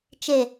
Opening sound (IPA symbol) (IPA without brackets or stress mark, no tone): t͡ʃ